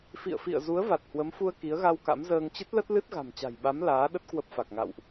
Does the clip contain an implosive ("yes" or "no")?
yes